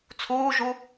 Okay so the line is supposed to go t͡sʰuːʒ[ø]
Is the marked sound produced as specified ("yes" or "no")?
no